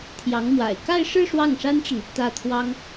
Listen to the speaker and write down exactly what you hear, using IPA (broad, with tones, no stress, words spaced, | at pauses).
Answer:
t̪ʰjɑ˧˥ŋmwa̰˨˩ɪ̯ ka˥˧ɪ̯ʂɻ̩˥˧ ʂwɑ˥˩ŋʂa˥nʈ͡ʂə˨n | t̪ä˥˩ t̪ʰwɑ˥ŋ